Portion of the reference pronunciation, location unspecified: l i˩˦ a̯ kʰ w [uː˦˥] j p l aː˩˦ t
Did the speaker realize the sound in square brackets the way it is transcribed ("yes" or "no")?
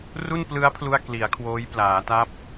no